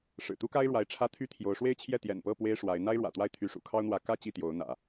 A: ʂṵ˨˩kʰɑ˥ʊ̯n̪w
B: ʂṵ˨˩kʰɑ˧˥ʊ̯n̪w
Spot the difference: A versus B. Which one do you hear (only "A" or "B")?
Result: A